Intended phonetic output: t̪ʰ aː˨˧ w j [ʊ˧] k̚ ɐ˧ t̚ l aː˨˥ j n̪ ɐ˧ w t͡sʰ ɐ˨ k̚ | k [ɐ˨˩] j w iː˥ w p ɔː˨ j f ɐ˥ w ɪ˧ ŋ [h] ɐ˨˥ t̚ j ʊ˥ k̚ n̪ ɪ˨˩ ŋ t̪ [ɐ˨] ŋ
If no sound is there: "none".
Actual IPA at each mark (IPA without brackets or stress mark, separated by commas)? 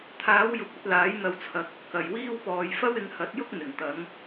ʊ˨, ɐ˨˩, h, ɐ˨˧